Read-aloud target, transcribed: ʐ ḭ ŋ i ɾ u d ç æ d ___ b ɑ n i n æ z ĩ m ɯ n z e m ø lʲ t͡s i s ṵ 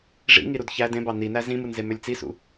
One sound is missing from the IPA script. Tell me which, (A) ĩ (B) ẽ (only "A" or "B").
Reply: B